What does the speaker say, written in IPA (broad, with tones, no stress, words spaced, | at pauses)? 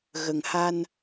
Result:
ɣə˨˩ŋha˧n